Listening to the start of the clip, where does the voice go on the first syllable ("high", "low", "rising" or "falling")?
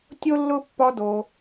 high